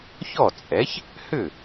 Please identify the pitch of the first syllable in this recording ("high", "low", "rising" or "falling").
falling